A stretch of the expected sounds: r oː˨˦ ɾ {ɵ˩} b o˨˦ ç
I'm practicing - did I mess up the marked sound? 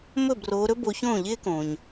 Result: yes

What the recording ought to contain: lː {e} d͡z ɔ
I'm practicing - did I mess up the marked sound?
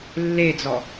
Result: no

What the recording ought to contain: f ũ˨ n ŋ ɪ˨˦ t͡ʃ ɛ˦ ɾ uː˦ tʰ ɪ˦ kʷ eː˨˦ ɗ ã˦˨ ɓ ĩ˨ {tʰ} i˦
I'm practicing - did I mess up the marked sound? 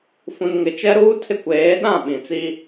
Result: yes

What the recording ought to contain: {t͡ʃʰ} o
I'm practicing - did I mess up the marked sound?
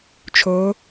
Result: no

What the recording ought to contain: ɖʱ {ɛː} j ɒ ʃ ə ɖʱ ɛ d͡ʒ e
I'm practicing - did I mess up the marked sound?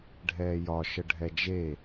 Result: no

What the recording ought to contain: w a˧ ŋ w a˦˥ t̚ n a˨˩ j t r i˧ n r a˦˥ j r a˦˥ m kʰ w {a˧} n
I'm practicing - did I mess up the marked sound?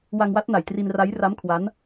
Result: yes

